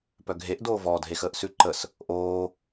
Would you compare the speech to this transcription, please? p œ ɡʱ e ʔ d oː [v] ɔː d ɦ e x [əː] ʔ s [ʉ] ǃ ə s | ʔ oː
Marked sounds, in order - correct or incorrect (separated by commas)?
correct, correct, correct